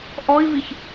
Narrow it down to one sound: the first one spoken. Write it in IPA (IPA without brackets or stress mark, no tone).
ʔ